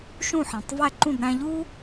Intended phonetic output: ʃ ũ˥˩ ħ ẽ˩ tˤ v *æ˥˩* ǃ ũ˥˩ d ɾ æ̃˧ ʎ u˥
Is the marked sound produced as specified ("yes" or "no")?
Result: yes